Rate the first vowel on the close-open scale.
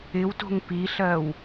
close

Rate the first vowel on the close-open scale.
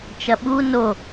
open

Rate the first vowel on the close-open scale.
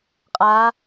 open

